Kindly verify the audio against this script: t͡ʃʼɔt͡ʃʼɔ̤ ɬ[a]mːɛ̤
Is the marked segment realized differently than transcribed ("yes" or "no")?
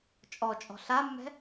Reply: no